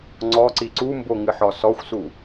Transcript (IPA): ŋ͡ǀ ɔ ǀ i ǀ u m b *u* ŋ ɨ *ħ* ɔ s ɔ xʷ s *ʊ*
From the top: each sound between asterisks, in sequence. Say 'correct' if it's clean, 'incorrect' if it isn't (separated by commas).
incorrect, correct, incorrect